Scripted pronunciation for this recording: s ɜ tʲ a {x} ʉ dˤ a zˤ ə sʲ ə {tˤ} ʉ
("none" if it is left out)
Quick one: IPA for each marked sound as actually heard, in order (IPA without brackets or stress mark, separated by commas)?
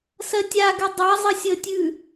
ɡ, tʲ